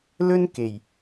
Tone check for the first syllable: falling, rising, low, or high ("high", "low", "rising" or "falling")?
high